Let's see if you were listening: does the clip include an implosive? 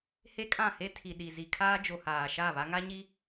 yes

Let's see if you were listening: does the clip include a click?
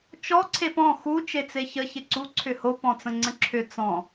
yes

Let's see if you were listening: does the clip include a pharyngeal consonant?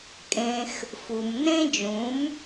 no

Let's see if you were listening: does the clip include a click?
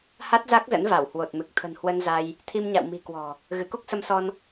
no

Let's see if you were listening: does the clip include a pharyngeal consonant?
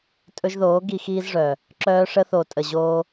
no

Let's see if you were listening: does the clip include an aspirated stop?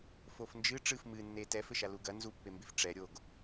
no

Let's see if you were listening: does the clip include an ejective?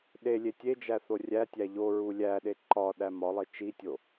no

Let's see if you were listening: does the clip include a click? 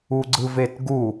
yes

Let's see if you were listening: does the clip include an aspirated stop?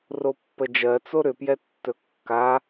no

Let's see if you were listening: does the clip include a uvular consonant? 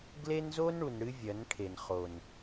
yes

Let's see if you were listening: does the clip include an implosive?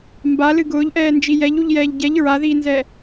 no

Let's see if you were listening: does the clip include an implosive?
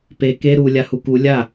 no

